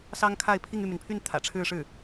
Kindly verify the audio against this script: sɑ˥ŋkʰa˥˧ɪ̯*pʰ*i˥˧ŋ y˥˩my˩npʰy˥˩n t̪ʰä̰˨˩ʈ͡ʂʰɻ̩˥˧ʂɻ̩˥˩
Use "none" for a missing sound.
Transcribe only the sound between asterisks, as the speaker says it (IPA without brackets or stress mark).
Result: pʰ